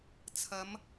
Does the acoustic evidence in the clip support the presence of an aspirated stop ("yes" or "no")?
yes